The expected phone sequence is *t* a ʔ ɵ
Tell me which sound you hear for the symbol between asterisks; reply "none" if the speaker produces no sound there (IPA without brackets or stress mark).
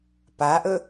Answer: p